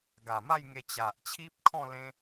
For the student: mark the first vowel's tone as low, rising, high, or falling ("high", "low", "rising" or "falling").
low